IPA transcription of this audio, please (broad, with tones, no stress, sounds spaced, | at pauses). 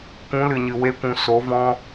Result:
kʷ ũ˨˦ l ɨ˨ ɲ ɨ˨ w e˦ kʷ ũ˧ s o˨˦ v ɔ̃˦